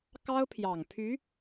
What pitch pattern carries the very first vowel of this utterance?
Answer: high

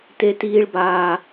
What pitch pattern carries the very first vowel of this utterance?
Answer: high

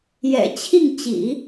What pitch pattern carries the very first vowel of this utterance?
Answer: low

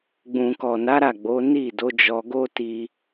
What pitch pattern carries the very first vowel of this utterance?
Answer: low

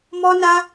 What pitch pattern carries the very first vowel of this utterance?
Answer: high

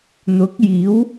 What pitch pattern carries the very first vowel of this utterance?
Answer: rising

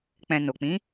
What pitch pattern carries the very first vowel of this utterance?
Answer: low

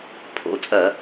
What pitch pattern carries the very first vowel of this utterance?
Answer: rising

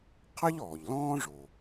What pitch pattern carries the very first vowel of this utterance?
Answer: high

